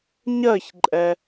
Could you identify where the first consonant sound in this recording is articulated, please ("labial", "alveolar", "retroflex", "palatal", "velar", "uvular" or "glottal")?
palatal